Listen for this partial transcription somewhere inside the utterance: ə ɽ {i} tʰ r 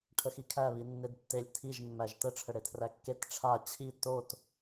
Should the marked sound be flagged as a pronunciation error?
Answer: yes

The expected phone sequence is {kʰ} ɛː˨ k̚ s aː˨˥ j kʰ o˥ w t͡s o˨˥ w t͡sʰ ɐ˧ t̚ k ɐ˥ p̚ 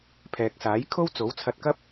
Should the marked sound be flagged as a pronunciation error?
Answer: yes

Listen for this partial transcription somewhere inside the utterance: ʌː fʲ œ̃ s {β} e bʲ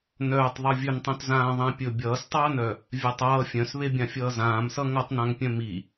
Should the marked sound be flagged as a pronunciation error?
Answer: no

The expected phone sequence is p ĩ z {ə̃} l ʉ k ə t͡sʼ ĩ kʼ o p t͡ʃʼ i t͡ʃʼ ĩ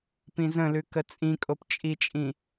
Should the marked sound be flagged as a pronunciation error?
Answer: no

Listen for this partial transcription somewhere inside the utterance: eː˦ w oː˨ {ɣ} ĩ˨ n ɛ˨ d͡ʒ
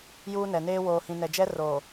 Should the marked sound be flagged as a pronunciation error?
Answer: yes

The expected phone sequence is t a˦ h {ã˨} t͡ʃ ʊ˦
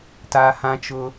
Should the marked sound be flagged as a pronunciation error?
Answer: yes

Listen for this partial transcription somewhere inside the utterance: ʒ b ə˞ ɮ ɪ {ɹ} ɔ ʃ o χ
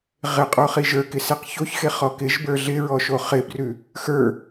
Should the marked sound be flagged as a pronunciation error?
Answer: no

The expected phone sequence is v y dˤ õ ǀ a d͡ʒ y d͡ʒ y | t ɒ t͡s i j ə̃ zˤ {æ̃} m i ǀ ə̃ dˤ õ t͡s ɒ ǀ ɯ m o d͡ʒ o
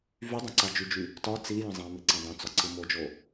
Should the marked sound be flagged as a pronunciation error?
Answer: yes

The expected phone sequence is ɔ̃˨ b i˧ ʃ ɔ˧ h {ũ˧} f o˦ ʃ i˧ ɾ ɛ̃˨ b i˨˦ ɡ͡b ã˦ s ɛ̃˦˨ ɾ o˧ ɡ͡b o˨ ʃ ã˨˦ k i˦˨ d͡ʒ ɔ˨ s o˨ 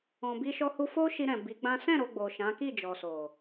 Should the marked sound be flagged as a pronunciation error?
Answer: yes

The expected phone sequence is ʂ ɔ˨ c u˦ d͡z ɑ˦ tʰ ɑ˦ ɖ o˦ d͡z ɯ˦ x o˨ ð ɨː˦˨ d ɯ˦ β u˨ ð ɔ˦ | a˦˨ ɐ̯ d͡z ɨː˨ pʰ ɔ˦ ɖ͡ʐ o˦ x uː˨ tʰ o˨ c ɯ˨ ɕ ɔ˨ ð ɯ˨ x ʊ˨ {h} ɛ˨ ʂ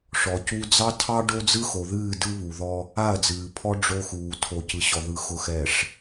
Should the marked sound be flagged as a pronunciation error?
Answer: yes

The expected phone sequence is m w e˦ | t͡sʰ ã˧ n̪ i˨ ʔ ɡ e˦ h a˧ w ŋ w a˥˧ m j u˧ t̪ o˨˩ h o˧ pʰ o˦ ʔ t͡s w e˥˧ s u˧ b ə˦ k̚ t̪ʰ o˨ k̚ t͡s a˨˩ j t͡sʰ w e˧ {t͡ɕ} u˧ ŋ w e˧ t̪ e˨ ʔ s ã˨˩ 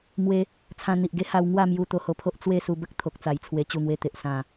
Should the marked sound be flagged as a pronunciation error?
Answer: no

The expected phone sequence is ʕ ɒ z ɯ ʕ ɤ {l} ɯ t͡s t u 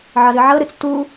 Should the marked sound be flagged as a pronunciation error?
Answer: yes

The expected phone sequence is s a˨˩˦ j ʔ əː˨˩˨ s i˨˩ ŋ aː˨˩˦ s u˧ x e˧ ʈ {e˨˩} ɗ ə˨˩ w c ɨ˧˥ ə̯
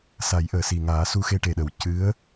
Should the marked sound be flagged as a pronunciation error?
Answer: no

